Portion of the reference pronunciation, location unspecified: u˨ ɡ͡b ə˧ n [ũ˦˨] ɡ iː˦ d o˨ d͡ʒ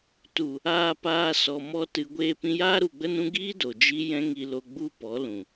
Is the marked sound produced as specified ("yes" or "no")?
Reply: no